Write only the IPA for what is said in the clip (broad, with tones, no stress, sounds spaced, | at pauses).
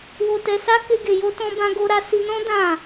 w o˧ t ɛ˧ s a˦ k e˦ ɡ e˧ j o˦ t ɔ̃˦ b ã˦ ɡ o˦ ɾ a˦ s i˧ n ɔ̃˦ d ã˦˨